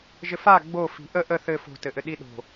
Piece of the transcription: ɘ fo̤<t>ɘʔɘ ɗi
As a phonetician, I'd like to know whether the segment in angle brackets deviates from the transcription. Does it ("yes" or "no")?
no